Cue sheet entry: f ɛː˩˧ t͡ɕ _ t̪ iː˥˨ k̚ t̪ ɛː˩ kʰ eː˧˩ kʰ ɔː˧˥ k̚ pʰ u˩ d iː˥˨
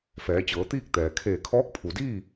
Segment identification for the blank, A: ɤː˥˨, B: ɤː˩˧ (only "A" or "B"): B